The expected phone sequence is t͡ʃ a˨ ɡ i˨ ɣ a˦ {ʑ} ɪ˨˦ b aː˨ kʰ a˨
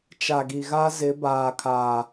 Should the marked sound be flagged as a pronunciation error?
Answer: yes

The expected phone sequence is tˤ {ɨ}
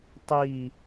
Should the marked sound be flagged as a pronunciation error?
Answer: yes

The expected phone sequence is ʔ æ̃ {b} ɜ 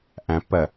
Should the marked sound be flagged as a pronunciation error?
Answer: yes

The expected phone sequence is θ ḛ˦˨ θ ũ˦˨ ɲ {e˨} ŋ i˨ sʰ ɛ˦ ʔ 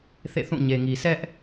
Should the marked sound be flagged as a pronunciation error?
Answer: no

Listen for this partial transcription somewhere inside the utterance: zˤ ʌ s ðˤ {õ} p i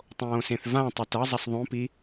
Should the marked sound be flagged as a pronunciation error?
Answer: no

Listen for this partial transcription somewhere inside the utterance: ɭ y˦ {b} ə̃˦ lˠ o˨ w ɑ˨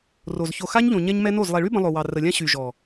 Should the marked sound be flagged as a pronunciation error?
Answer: no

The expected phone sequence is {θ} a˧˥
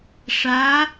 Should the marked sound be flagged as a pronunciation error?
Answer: yes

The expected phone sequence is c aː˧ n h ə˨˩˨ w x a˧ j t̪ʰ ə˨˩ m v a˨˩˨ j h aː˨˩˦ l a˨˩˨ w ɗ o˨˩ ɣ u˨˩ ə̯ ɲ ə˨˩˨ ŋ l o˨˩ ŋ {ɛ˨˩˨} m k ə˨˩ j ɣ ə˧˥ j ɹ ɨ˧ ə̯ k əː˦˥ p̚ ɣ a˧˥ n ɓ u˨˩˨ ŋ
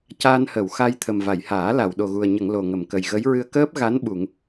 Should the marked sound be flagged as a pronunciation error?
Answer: yes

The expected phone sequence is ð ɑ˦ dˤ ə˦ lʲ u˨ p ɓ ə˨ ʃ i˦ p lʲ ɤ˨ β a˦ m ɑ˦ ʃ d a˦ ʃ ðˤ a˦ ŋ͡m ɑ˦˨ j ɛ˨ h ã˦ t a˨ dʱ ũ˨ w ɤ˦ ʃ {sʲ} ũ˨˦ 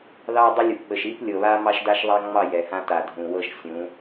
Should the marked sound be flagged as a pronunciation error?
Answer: no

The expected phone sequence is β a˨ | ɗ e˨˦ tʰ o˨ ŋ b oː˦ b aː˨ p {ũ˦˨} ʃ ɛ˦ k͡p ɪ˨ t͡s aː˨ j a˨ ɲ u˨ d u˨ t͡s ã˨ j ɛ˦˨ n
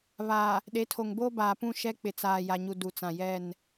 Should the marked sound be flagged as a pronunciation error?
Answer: no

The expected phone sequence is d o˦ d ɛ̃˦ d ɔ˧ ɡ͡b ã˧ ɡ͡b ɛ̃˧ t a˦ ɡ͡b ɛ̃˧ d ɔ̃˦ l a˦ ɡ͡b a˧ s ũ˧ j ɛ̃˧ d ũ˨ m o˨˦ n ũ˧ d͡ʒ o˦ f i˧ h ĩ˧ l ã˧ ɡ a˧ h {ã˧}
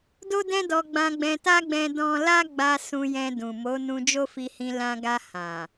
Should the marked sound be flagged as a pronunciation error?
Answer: yes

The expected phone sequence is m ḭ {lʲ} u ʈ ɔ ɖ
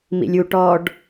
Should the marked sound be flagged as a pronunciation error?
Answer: no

